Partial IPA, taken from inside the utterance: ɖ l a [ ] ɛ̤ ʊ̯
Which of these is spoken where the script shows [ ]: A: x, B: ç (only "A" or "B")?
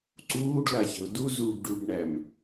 B